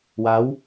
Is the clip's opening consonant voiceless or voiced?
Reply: voiced